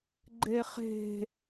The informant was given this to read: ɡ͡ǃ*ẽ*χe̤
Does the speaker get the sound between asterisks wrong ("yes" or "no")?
yes